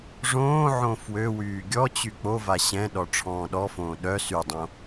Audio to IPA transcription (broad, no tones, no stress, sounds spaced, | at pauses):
ʐ õː ʕ õ f w ø w yː ɡʲ ɔ t͡ɕ y k͡p o v a ɕ ɛ̃ ɗ ɔ ʈ͡ʂʰ ɔ̃ː ɗ ɔ f õː ɗ œ s y dˤ õ